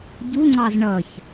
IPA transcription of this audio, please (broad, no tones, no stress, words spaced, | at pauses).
ɟuŋ͡ǀɑz ɳʌç